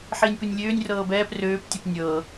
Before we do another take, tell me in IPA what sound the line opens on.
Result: ħ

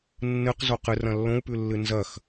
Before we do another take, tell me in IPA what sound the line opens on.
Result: nː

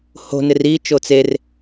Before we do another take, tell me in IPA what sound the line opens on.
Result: h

